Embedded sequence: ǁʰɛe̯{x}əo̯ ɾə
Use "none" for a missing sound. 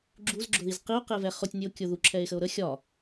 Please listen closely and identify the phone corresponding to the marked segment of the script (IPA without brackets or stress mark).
x